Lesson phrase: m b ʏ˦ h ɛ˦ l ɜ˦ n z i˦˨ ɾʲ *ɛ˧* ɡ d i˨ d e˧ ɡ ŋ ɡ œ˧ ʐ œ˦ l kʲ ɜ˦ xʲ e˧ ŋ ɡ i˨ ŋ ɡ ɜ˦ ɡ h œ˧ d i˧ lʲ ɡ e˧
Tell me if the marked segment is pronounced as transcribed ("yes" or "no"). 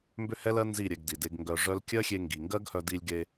yes